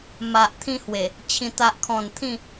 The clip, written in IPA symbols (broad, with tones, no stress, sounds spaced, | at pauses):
m a˨ ʔ t̪ʰ ĩ˧ h w e˨˩ | t͡ɕʰ ĩ˨˩ t̪ a˨ ʔ kʰ ɔ̃˨˩ n t̪ʰ ĩ˥˧